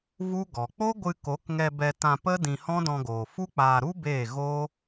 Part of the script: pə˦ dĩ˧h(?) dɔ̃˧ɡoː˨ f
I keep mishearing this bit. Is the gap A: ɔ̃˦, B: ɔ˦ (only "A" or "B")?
A